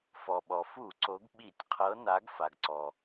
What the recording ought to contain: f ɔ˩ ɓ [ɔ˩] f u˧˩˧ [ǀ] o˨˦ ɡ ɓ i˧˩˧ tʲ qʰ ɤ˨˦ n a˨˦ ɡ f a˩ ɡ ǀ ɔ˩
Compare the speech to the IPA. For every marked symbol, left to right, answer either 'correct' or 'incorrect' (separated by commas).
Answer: correct, correct